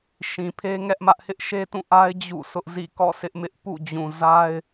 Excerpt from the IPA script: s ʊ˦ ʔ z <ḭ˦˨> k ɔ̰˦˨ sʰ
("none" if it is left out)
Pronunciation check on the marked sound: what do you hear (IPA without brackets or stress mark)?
ḭ˦˨